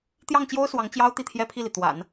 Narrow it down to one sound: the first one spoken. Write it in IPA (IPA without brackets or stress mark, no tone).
t̪